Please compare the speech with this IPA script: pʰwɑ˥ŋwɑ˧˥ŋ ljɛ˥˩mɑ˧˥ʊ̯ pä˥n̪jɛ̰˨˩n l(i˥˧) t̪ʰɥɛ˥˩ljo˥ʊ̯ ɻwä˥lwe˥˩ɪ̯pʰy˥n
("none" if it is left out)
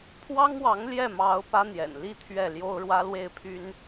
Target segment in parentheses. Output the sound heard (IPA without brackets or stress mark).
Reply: i˥˧